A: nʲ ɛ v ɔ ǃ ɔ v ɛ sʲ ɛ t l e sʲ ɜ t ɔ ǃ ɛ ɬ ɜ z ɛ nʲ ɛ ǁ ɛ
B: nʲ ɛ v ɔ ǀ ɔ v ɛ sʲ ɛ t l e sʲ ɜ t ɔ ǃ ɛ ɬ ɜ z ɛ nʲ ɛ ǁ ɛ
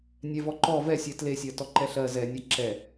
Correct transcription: A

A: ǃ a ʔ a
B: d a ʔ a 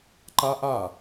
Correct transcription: A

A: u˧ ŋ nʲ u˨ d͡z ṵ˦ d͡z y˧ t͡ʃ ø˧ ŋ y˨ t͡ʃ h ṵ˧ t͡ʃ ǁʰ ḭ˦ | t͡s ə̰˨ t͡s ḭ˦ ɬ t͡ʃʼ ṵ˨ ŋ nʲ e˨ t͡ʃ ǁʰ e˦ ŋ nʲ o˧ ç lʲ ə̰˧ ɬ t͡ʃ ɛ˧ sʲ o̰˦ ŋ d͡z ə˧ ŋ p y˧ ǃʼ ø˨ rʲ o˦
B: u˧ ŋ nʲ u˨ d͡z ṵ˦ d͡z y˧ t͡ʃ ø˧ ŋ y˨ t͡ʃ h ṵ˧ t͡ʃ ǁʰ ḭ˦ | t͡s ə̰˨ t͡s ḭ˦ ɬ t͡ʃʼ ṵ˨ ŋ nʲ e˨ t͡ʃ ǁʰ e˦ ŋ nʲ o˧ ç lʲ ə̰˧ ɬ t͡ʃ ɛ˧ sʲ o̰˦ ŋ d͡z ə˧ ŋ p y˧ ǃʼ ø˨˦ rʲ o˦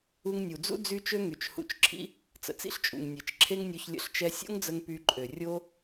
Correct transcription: A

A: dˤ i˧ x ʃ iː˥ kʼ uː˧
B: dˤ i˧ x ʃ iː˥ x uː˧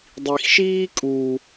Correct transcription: A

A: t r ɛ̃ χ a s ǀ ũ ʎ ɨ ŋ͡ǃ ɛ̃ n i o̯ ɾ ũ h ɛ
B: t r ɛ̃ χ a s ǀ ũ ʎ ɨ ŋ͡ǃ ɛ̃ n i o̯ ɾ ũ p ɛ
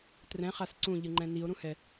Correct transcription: A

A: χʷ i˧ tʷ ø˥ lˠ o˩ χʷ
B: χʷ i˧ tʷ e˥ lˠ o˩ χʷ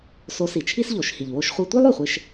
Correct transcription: B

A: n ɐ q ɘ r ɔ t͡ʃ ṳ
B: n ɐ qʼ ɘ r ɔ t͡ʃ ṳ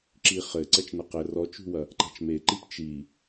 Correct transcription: A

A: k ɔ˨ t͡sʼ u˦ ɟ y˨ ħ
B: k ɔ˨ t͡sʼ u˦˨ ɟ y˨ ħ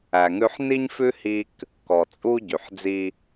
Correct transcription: A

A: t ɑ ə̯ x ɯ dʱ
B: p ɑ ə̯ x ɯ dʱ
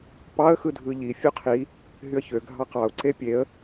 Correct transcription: B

